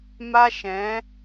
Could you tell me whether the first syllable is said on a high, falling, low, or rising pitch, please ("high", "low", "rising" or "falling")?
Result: high